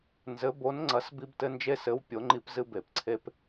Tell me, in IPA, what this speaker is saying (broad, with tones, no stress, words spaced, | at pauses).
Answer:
nzɘ˨˥bo˨˥nŋ͡ǀɐ˨˥s bi˦btɘ˦nd͡ʒe˦sɘ˨˥w pʲo˨˥ŋ͡ǃi˦p zɨ˦be˨˩˦pǀʰe˦p